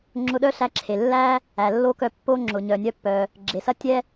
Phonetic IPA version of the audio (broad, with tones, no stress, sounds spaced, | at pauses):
ŋ͡ǁ ʊ˧ ɗ œ˥ ɬ æ˧ ǁʰ e˩ lː æ˥ | æ˩ lː o˥ k œ˧ pː o˥ ŋ͡ǁ ʊ˩ ɲ œ˩ nʲ œ˧ pː œ˩ | ɡ͡ǁ e˩ s ɐ˥ tʲ ɛ˥